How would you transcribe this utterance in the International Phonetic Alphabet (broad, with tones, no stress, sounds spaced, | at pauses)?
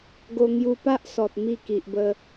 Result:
ɡ o˧ ŋ j u˧ p a˦ ʔ s ɔ˨ t̚ m i˥˧ k i˨ ʔ b ə˧